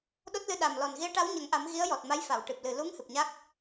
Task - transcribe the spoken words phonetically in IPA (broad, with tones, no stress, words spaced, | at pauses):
ɗo˦˥t̚lɨ˧ ɗa˨˩mlɔ˨˩n ɣi˧˥ə̯ʈa˧˥wɲə˨˩˦ŋʔa˨˩˦m ɣi˧˥ə̯jɔ˨˩t̚ma˧˥j fa˨˩˨wʈɨ˨˩p̚lɨ˨˩ lu˧˥ŋ hɨ˨˩p̚ɲa˦˥k̚